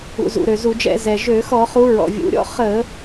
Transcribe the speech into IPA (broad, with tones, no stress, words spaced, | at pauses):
ṵ˩zṵ˩ ɾø˩zu˧˩˧d͡ʒɛ̰˧˩˧ zɛ˩ʒø˧˩˧ xɔ˧˩˧χu˨˦ ɹɔ̰˩vʲṵ˩˧˩ɾʲɔ̰˥ χə˧˩˧